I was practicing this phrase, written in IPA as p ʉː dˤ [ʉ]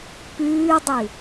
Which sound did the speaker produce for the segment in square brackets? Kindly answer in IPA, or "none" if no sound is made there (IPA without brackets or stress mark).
ʉ